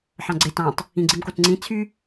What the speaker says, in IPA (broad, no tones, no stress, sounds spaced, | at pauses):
ħ ɑ̃ ɡ͡ǀ e t ɑ̃ tˤ | ĩ ɡ͡ǀ i m k o t ŋ͡ǀ ĩ t͡sʰ y